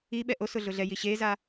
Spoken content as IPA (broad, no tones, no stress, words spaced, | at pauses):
i ɓɛʔosʊ ɮʊɮɛji ɕeza